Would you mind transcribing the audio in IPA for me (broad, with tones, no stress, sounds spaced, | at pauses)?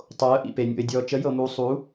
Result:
tˤ o˨˦ ə̯ ʔ ḭ˨ p e˨ nʲ o̰˨ ɪ̯ dʲ ɔː˨ t͡ʃ ə˨˦ j ɤ˨ m uː˨ sˤ u˨˦